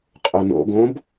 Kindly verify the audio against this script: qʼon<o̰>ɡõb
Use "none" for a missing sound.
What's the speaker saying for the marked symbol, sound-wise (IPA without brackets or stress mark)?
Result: o̰